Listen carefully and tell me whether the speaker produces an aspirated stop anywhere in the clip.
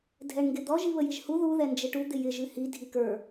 no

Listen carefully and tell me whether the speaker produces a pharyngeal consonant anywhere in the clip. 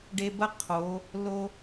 no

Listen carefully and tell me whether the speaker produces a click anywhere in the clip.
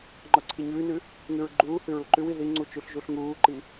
yes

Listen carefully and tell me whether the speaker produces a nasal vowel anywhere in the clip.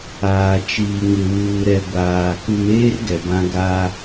yes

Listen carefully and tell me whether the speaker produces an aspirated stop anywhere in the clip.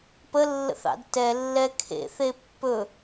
yes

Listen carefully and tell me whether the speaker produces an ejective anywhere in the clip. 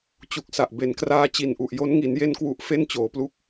no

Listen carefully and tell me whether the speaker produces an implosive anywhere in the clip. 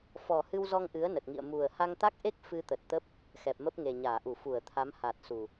no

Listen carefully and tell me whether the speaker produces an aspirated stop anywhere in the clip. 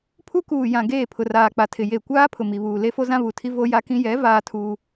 yes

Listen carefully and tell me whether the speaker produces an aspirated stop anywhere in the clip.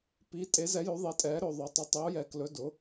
no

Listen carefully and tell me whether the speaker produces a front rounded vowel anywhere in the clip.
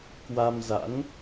no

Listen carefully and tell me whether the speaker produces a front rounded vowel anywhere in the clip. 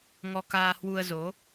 no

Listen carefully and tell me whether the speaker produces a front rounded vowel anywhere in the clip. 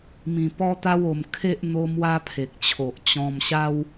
no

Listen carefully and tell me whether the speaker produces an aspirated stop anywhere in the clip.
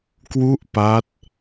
no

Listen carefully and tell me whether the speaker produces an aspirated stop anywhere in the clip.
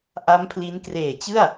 yes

